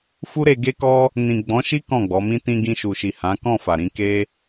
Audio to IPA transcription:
f u˦ ɾ e˧ ɡ e˦ k ɔ˦ | n ĩ˨ ɡ͡b ɔ̃˨˦ ʃ i˦ k ɔ̃˦˨ ɡ͡b ɔ˨˦ m ĩ˦ t ĩ˧ ɡ ĩ˧ ʃ u˨ ʃ i˨ h ã˨˦ k ɔ̃˦˨ f a˨ ɾ ĩ˧ k e˦

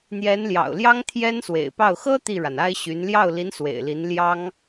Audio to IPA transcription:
n̪ j ɛ˧˥ n l j ɑ̰˨˩ ʊ̯ l j ɑ˥ ŋ t̪ʰ j ɛ˥ n s w ḛ˨˩ ɪ̯ p ɑ˥˩ ʊ̯ x ɤ˥ t̪ i˥˩ ɻ a˩ n a˥ ɪ̯ ɕ y˧˥ n l j ɑ˥˩ ʊ̯ l i˧˥ n s w ḛ˨˩ ɪ̯ l i˧˥ n l j ɑ˥ ŋ

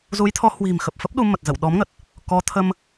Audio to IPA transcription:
z u˨˦ j t̪ʰ ɔ˨˦ h w i̤˨˩ m x ə˨˩ p̚ f ə˦˥ p̚ ɗ u˧ m ə˨˩ t̚ z ə̰˧˨ w ɗ ɔ˨˦ m ŋ ə˨˩ t̚ | k ɔ˨˦ t̪ʰ ə˧ m

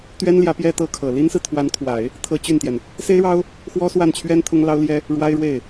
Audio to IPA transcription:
t̪ ɥ ɛ˥ n l j ä˧˥ p j ɛ˥˧ t̪ ɤ˥˩ kʰ ɤ˨˩ l i˥ n s ɹ̩˨ t̪ʰ w a˧˥ n kʰ w a˨˩˦ ɪ̯ | t̪ʰ ɤ˥ t͡ɕ y˥˩ n t̪ j ɛ˩ n | s e˥ ɪ̯ ɻ ɑ˥ ʊ̯ | x w ɔ˥ s w a˥˩ n t͡ɕʰ ɥ ɛ˥ n t̪ʰ ʊ˥ ŋ l ɑ˥ ʊ̯ l j ɛ˥ | ɻ w a˥ ɪ̯ ɻ w e˥˩ ɪ̯

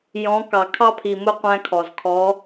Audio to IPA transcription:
j ɔ̃˨˦ k ɑ˩ kʰ ɑ˦ pʰ i˩ m ʊ˦˨ qʷ æ̃˦ kʰ ɔ˩ z kʰ ɔ˨˦

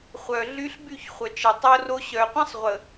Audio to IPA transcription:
χʷ œ˨ ɮ y˦ ɬ b y˦˨ ç χʷ œ˨ t͡ʃ ɛ˨ tˤ o˦ r o˦ ɕ œ˨ qʷ ə̃˦ sˤ ʁʷ ə˨

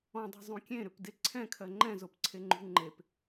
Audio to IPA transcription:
ɔ̃ dˤ o̤ zˤ ũ kʲ ẽ ɾ ʏ p d e ǀʰ ɛ̃ kʰ ɜ ŋ͡ǃ ɛ̃ z o p ǀʰ e ŋ͡ǃ ṳ ŋ͡ǃ e p

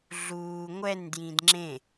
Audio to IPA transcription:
ɮ uː ŋʷ ɛ n d j ĩ d ŋ͡ǁ ẽ

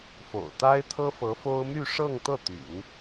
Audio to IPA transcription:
f o̰˨˩ ʊ̯ t̪ a˥ ɪ̯ t̪ʰ ɤ˥ f ɤ˧˥ f o˥ ʊ̯ m y˥˧ ʂ ɤ˥˧ ŋ t̪ ɤ˥˩ t̪ y̰˨˩˦ n

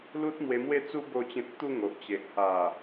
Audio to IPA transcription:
l u˦ t̚ m w e˧ m w e˥˧ t͡s u˦ b o˥˧ t͡ɕ ẽ˦ t̚ t̪ u˥˧ ŋ o˨ ʔ t͡ɕ e˨ ʔ h a˨˩

